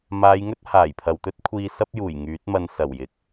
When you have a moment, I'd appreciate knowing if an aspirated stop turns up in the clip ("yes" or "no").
yes